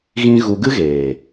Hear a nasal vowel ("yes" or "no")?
yes